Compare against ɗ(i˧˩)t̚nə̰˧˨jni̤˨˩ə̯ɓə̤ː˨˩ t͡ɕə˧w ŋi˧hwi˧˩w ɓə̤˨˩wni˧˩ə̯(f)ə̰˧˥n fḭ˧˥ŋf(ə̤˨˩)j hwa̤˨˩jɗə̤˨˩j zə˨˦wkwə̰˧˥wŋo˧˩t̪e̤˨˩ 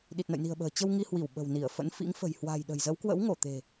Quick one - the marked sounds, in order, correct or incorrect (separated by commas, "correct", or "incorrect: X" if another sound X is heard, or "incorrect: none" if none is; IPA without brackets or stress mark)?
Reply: incorrect: i˨˩, correct, correct